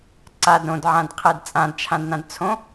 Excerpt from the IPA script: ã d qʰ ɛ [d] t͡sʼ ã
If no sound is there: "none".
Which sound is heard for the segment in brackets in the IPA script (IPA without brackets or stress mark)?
d